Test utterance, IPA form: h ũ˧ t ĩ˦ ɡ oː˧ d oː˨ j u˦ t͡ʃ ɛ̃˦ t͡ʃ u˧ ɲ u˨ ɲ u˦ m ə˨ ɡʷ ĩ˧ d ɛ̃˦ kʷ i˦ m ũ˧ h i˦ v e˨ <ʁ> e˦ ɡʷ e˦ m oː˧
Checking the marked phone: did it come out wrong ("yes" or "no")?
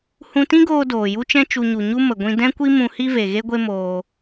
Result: yes